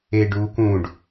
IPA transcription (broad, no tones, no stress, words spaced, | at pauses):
eɖuːkũːɖ